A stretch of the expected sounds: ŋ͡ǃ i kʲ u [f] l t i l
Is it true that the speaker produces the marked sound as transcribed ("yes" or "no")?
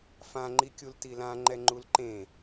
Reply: no